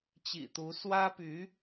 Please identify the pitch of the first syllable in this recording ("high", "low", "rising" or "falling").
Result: low